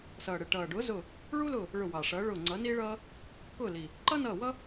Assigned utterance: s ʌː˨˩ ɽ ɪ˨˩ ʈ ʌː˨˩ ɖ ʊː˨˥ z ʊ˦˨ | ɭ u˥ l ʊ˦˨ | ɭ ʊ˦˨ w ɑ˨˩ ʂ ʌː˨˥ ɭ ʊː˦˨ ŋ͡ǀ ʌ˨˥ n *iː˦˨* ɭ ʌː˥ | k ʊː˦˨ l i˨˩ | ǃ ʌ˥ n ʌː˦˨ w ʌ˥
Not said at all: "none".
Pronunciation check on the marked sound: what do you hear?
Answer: iː˥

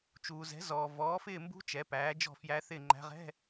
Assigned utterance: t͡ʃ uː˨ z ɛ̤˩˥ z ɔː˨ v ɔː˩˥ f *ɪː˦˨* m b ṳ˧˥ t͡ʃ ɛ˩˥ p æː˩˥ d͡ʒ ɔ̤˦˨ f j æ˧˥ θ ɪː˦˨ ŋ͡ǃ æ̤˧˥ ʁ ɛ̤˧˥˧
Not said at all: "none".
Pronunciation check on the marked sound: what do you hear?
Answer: ɪː˦˨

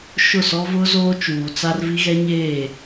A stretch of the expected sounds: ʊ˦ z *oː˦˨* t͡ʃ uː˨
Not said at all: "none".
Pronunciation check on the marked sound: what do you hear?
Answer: oː˦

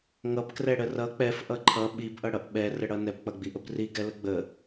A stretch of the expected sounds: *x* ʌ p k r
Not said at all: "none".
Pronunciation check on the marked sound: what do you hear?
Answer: ŋ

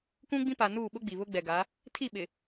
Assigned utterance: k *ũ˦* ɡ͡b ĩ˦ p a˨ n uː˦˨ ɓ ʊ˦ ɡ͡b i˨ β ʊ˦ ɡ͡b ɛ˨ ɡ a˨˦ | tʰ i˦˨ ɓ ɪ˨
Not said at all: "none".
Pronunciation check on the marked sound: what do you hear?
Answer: ũ˦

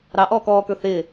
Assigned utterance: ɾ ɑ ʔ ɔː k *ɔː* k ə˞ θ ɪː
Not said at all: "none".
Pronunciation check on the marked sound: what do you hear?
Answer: ɔː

